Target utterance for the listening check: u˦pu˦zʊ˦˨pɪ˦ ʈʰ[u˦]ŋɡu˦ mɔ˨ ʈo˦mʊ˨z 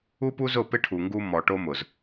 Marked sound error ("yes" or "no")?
yes